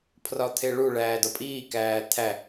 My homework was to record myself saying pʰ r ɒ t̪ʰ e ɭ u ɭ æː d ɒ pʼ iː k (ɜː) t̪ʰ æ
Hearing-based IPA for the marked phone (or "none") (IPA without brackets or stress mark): æː